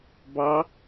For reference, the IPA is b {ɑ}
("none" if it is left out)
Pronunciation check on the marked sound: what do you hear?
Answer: ɑ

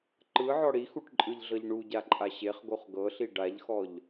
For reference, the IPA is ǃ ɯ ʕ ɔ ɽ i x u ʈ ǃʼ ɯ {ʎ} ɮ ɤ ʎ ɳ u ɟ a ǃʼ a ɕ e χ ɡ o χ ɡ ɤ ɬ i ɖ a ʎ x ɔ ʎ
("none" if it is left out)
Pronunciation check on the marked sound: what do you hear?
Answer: ʎ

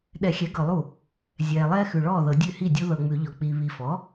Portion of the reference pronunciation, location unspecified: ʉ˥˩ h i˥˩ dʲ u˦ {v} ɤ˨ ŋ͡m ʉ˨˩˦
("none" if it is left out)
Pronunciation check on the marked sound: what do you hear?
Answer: ð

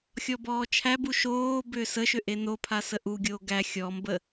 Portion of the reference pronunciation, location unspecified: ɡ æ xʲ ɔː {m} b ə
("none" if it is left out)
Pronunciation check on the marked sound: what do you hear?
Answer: m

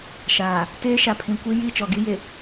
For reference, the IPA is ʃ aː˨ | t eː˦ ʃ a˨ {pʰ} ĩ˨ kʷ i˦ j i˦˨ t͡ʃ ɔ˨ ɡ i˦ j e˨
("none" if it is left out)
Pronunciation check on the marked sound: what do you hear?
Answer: pʰ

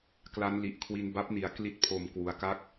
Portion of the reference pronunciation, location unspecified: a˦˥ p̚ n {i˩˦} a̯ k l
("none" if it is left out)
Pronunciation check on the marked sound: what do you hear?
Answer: i˩˦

